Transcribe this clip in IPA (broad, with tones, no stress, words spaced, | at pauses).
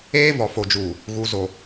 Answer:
eː˦vɔ˨fo˨d͡ʒuː˨ | ɣu˨zo˨